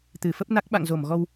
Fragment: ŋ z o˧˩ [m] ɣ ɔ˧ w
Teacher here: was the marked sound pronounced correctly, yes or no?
yes